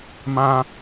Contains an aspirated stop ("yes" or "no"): no